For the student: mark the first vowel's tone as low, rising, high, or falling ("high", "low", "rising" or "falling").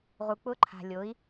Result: low